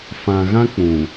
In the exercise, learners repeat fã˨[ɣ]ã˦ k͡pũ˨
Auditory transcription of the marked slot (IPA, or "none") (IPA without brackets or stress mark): ɣ